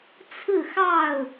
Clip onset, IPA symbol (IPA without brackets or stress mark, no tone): t͡sʰ